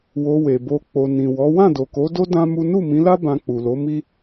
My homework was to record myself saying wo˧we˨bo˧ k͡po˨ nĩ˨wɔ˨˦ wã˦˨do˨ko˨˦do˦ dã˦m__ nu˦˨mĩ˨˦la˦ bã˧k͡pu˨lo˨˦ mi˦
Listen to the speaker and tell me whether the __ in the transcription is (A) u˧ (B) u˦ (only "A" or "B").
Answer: B